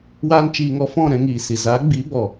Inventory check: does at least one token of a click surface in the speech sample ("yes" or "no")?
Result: no